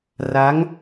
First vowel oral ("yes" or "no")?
yes